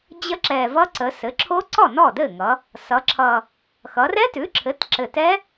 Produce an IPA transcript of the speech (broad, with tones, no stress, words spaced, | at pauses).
d͡ʑə˦˥ǁɛ˨˩vʌ˦˥ ǀə˩˧ sɘ˩˥ǁʰo˦˥ǀɔ˥˩ nɔ˥˩dɘ˥˩ŋʌ˩˧ | sʌ˩˧ǁʰʌ˨˩ | xʌ˩˧rɛ˦˥tʉ˩˥ǁʰɘ˩˥t ǁɘ˨˩tɛ˦˥